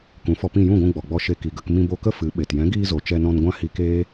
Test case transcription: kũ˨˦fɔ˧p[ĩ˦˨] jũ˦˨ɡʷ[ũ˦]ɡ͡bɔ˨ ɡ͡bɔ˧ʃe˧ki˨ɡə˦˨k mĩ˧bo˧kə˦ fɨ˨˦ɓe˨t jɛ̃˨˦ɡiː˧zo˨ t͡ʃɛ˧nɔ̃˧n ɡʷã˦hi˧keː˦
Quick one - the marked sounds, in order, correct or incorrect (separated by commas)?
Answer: correct, incorrect